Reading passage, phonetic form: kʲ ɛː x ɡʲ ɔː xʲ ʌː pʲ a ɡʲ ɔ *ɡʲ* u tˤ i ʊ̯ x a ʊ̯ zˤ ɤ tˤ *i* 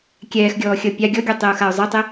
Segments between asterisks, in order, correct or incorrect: correct, correct

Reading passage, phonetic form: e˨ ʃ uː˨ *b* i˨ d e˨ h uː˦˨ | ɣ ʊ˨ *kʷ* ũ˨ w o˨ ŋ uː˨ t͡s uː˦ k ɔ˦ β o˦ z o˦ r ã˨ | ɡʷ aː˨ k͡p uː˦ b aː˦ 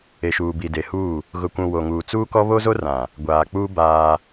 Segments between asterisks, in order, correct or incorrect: correct, correct

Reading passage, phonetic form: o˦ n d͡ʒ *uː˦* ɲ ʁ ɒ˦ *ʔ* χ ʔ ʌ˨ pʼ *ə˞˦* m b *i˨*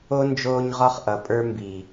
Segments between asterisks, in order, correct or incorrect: incorrect: oː˦, incorrect: none, correct, correct

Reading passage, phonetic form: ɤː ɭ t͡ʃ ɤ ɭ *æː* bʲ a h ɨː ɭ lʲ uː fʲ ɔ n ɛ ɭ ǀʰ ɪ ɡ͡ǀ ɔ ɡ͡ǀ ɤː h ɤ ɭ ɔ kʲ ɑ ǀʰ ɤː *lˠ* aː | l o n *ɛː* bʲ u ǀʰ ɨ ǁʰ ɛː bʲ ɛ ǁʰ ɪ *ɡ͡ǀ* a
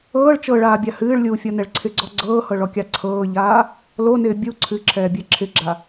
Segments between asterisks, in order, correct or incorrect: incorrect: aː, incorrect: ʎ, incorrect: ɪː, incorrect: ɡ͡ǁ

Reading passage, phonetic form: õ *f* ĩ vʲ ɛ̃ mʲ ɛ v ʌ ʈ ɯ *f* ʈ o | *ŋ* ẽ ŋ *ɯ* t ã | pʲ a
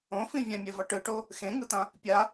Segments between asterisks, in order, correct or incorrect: correct, incorrect: none, incorrect: x, correct

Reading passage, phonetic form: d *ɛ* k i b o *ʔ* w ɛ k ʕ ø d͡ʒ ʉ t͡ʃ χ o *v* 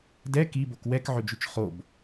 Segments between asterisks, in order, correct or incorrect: correct, incorrect: k, incorrect: b

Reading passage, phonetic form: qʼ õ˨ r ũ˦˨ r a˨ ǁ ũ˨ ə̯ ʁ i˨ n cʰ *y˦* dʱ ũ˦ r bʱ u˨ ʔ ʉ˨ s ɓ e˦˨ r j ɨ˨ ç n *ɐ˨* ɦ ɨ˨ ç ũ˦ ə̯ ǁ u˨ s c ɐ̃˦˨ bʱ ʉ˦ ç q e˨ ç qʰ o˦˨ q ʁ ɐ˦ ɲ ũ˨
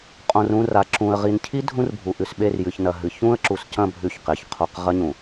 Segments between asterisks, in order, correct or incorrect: incorrect: i˦, correct

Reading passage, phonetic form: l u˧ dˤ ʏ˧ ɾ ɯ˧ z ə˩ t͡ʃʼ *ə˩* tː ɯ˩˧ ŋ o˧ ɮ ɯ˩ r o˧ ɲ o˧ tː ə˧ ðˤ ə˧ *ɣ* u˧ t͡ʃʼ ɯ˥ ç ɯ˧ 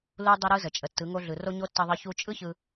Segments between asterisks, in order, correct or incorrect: correct, incorrect: ç

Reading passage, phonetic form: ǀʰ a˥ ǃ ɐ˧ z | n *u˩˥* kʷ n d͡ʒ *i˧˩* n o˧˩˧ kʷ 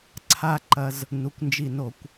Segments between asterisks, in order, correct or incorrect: incorrect: u˩˧˩, correct

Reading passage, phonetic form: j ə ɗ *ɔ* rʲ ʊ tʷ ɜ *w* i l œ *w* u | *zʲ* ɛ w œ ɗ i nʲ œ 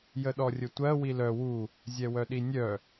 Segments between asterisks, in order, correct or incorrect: correct, correct, correct, correct

